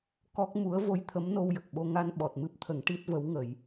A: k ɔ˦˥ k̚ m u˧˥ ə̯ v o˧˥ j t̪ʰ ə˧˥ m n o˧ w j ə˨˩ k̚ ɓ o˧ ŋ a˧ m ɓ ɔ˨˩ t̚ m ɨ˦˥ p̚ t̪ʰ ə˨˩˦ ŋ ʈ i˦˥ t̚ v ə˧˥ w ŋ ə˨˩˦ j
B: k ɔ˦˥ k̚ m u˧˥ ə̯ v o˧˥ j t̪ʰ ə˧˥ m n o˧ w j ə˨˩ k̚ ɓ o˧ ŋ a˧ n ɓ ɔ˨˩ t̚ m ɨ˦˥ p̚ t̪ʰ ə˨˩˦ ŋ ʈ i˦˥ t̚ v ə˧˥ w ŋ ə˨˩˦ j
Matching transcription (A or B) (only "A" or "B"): B